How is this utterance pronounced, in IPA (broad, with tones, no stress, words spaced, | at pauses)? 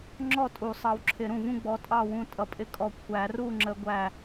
ŋ͡ǁɔ˥˨tʼu˨˩˦ sˤɑ˨˦wǁʰɪ˨˩˦ɾũ˧˩vũ˥˨ ɡ͡bɔ˨˦tʼɑ˥˨wũ˧˩ tʼʌ˨˦pʼɪ˥˨kʼɔ˧˩ kʷʰæ˨˩˦ru˥˨ŋ͡ǁə˨˦ɡʷæ˧˩